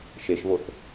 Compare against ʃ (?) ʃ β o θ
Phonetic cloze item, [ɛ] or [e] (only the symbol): e